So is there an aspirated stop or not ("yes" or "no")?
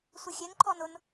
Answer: yes